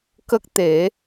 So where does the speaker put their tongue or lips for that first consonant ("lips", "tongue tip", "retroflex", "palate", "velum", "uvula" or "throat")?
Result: velum